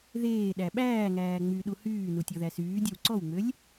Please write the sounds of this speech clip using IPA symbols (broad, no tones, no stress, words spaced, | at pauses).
ðeː ɗæɓæːŋæː ŋ͡myɗu hyːnu tʲɔðæsyːdʲœw ǀɔwŋ͡mølʲ